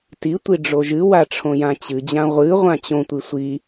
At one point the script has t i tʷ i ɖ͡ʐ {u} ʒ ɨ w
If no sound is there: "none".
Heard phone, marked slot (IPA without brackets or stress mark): o